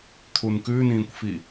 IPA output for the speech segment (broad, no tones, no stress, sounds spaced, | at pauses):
t̪ʰ u n k ʉ n ĩː kʷ f i